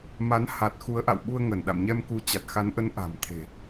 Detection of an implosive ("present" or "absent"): present